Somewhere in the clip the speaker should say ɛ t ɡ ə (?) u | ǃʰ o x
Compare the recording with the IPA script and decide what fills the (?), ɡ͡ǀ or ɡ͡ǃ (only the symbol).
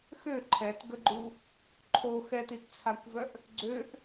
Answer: ɡ͡ǃ